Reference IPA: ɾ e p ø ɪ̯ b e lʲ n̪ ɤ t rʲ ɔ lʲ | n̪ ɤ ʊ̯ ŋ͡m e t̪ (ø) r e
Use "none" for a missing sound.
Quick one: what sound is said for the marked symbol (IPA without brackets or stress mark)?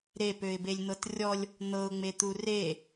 u